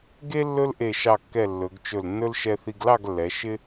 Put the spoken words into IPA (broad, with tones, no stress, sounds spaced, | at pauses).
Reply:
ɡ e˥ lː ɵ˥ l ʔ e˧˩ ʃ ɑ˧˩ kː ɛ˧˩ lː ɵ˩˧ ɡ t͡ʃ ɵ˧˩ l nː ɵ˥ l ʃ ɛ˧ θ i˧ ɡ l ɑ˥˧ ɡ lː ɛ˩˧ ʃ ɪ˥